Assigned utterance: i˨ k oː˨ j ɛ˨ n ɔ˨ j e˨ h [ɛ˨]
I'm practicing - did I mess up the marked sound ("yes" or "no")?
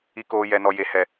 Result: no